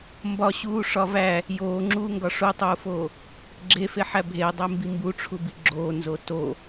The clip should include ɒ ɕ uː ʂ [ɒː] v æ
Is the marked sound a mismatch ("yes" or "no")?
yes